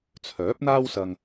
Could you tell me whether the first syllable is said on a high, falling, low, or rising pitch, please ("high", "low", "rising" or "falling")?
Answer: rising